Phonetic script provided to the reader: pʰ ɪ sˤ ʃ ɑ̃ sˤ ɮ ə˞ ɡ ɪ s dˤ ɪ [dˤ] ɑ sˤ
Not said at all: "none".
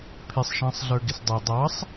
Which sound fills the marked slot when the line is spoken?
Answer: dˤ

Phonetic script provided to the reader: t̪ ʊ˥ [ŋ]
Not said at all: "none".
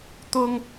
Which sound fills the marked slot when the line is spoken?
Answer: ŋ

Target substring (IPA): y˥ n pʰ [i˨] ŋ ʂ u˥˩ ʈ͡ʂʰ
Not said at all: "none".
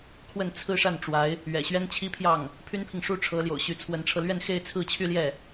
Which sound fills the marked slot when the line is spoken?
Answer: i˨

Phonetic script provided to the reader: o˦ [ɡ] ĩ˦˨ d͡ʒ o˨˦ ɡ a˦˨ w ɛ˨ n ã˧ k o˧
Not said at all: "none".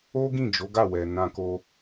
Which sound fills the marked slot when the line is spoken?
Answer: ɡ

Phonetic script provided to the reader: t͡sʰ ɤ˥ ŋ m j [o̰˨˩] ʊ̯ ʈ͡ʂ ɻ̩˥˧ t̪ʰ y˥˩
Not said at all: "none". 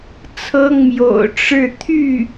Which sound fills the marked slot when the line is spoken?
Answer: o̰˨˩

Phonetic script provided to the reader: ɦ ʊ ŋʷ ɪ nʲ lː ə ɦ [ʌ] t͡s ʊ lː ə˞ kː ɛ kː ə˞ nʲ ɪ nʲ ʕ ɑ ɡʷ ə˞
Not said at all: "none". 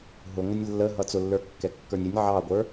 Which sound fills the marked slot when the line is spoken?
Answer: ʌ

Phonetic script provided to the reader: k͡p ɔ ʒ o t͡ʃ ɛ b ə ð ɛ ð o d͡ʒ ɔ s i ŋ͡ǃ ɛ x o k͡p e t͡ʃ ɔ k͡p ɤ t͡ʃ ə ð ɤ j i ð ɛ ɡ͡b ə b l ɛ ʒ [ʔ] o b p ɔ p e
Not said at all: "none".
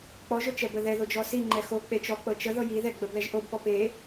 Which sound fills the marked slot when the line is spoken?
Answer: ʔ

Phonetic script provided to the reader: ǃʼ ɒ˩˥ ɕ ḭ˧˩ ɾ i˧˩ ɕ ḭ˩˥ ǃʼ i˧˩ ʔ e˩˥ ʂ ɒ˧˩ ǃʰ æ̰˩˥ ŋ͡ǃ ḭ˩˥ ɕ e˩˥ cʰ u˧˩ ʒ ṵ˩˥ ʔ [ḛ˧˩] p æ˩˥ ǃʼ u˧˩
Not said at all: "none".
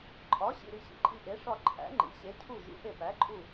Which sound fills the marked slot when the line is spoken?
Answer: e˧˩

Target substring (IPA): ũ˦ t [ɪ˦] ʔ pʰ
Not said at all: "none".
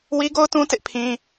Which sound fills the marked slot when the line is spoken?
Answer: ɪ˦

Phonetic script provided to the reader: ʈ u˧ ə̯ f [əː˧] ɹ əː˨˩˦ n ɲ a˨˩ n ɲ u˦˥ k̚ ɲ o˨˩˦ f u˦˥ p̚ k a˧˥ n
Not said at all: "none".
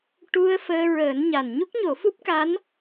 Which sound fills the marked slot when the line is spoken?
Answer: əː˧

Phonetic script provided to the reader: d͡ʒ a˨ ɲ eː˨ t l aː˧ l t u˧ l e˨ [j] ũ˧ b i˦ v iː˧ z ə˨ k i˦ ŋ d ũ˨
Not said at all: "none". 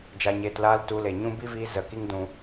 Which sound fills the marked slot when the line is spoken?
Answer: ɲ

